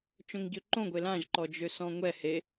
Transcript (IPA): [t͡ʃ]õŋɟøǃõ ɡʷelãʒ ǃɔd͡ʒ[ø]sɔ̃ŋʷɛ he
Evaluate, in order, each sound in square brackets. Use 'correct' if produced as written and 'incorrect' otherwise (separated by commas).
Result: correct, correct